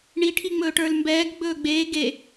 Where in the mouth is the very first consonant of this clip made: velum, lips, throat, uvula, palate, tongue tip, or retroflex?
retroflex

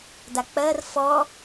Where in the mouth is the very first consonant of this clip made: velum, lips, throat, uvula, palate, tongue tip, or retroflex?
tongue tip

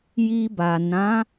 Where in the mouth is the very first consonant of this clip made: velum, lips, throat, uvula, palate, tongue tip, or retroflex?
palate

